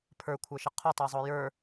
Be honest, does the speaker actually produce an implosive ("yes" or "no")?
no